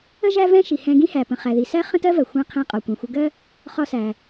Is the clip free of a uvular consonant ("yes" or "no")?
no